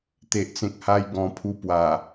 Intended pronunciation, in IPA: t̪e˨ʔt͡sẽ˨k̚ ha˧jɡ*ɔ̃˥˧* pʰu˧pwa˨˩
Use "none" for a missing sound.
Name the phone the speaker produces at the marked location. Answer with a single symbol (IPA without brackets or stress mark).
ɔ̃˨˩